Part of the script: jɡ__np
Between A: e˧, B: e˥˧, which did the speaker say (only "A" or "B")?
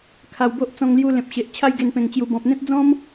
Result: A